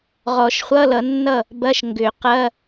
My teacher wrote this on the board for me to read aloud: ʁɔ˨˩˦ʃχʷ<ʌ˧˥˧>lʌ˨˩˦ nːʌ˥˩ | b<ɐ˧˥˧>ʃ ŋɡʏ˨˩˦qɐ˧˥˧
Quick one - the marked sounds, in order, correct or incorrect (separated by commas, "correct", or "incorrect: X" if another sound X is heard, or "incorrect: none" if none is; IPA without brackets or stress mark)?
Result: correct, correct